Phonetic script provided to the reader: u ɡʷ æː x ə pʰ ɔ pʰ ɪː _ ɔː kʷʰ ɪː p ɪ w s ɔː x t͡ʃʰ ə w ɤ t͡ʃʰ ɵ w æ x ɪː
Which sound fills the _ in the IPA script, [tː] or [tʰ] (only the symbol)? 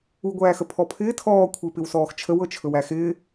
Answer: tʰ